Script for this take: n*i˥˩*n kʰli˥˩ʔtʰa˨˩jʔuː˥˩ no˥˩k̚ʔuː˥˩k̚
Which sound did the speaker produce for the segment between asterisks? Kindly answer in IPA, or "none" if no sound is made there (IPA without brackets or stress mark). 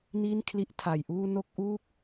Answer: i˥˩